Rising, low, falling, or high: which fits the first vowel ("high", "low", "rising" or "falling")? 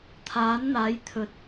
rising